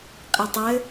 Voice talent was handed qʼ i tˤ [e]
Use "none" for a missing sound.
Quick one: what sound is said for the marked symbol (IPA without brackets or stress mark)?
ɘ